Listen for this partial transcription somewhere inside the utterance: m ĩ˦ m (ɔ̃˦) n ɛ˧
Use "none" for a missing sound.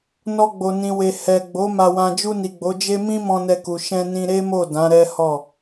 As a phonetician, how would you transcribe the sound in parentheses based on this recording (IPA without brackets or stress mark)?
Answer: ɔ̃˧